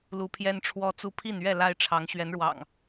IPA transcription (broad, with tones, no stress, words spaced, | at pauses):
lu˨˦pʰjɛ˦nʈ͡ʂʰwɔ˦t͡su˦ pʰi˥˨nɥɛ˥˨ la˦ɪ̯ʈ͡ʂʰɑ˨˦ŋ ɕɥɛ˨˦nɻwɑ̰˨˩ŋ